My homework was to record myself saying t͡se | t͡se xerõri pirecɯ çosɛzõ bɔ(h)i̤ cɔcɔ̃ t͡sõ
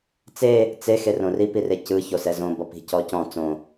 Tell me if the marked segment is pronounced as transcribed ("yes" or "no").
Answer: no